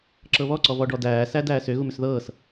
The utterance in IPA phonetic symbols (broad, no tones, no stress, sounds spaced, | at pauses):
ǁ ɤ β ɔ ǀ ɔ v ɔ ɖ ɔ d æː s æ d æː s ʏ ɣ u m ʏ s ð ɤː s